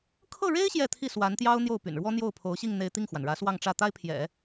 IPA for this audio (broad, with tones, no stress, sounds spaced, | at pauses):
kʰ ɤ˥˩ ɻ e˥ ɪ̯ ɕ j ɛ˥˧ t̪ʰ i˥˩ s w a˧˥ n t̪ j ɑ˥ ʊ̯ n̪ j o˥˩ ʊ̯ p y̰˨˩ n ɻ w ɔ˥ n̪ j o˥˩ ʊ̯ pʰ o˧˥ ʊ̯ ɕ i˥˧ ŋ n̪ e˥˧ ɪ̯ t̪ i˥˩ ŋ x w a˩ n ɻ ä˧˥ s w ɑ˥˧ ŋ ʈ͡ʂ ä˥˩ t̪ a˥ ɪ̯ pʰ j ɛ̰˨˩˦